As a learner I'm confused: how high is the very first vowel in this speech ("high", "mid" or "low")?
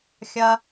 low